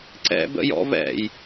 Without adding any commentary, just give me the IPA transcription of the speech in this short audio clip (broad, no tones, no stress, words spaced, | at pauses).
ǀɛ̰bə̰jɔ̰ vɛ̰j